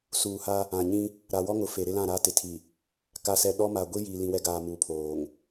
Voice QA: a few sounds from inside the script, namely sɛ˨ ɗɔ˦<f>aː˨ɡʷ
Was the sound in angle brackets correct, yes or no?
no